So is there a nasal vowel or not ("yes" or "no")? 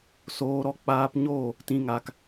yes